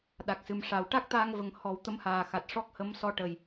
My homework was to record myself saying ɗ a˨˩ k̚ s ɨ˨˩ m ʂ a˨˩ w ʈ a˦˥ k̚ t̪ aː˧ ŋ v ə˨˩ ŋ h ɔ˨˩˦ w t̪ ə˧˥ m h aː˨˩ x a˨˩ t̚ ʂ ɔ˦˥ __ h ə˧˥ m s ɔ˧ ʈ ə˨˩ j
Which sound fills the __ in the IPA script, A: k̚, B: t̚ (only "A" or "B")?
A